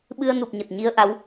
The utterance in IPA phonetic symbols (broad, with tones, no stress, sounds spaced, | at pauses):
ɓ ɨ˧ ə̯ n u˨˩ p̚ ɲ ə˨˩ t̚ ɲ i˧ ə̯ ʔ a˨˦ w